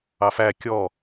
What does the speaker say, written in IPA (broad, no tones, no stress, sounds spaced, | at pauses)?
ɑ f æ kʲ ɔ